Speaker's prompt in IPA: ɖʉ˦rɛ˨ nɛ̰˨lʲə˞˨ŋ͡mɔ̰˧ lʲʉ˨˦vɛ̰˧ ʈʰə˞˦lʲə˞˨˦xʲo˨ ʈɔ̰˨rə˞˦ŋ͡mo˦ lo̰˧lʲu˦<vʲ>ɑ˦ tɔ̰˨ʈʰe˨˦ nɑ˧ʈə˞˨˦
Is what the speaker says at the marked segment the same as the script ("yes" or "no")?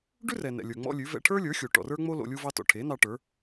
no